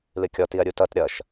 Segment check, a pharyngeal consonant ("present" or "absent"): absent